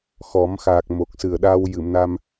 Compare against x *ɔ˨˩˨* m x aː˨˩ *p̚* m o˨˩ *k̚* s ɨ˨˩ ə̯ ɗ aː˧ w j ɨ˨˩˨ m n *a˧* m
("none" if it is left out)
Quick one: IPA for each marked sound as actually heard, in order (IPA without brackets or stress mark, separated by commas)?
ɔ˨˩˦, k̚, k̚, a˧